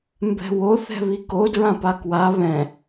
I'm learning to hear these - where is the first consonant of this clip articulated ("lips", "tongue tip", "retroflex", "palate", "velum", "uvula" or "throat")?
lips